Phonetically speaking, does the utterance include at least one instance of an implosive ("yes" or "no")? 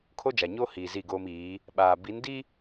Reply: yes